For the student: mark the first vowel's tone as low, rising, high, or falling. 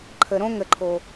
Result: low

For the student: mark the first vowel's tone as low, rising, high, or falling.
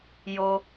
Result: high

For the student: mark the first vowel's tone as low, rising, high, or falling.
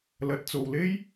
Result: rising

